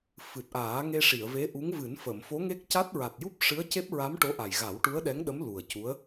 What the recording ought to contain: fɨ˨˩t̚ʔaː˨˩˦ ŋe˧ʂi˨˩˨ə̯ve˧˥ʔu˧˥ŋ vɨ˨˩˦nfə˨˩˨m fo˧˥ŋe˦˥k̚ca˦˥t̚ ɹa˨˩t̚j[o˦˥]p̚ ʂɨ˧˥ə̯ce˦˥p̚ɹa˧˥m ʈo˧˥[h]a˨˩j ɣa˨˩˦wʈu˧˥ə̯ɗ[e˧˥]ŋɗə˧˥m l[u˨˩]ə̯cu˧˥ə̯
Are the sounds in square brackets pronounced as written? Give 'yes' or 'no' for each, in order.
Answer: no, no, no, yes

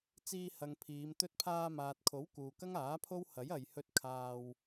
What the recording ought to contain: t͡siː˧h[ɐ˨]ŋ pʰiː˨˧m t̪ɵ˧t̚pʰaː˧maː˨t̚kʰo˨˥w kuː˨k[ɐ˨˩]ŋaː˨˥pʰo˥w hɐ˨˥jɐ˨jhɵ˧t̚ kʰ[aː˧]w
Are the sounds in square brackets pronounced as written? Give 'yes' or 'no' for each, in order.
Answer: yes, no, yes

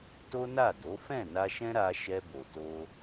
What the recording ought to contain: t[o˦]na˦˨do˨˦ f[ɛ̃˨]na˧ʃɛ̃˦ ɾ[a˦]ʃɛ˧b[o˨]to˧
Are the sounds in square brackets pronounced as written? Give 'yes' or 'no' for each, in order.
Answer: yes, no, no, yes

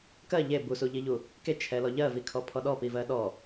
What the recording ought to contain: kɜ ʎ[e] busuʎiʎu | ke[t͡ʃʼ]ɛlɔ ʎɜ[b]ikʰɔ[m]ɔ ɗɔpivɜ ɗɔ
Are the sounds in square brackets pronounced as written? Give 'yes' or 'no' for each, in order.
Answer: yes, no, no, no

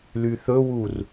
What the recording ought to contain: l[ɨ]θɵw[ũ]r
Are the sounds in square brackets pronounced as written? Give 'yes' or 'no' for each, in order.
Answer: no, no

